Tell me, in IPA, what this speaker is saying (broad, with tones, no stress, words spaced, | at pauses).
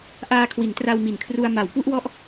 ʔaː˧kʰwi˩˦ntra˧w mi˨˩nkʰru˧a̯ ma˩˦wpu˥˩ʔwɔ˦˥ʔ